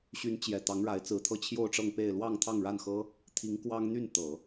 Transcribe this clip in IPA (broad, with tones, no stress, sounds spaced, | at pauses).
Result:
ɕ y˧˥ n t͡ɕ j ɛ˨˩ t̪ ɑ˧˥ ŋ ɻ a˧˥ ɪ̯ t͡s ɹ̩˧˥ t̪ʰ ɤ˥ t͡ɕʰ j o˥˧ ʊ̯ ʈ͡ʂ ɤ˥˧ ŋ p e˥˧ ɪ̯ l w ɑ˥˧ ŋ t̪ʰ ɑ˥˧ ŋ ɻ a˥˩ n x ɤ˥ | t̪ʰ i˧˥ ŋ k w ɑ˥ ŋ n̪ y˥˩ n t̪ ɤ˨˩˦